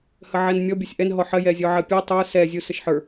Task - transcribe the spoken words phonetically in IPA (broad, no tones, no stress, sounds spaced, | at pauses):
h ə ʕ ɛ n mʲ ɔ bʲ ɔ sʲ ʔ ɛ n ɦ ɔ ħ ɜ j ɛ zʲ ɔ ʕ ɜ pʲ ɔ tˤ ə˞ s ɛ zʲ u s ə ʃ ħ ə˞